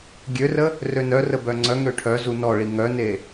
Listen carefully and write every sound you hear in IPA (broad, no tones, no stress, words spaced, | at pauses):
ɡʲørə | rønœrə bœŋ͡ǀœŋø ʈʰœzu nɔɭi ŋœne